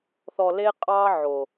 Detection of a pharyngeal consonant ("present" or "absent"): present